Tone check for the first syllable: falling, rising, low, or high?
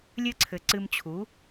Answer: high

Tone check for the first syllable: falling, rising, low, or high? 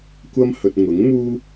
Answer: high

